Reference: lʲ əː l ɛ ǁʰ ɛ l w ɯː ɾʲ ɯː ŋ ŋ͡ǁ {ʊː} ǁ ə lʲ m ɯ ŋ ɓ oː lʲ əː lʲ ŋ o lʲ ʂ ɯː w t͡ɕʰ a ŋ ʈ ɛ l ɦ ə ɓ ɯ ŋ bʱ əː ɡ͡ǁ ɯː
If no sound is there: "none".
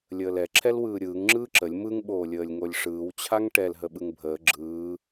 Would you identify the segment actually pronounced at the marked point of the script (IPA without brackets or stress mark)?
ɯː